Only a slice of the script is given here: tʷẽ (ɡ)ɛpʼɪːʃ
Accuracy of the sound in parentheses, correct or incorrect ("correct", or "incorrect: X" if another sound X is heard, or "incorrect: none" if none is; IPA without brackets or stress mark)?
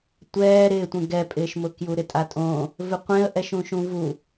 correct